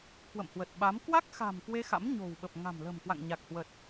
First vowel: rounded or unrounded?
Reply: unrounded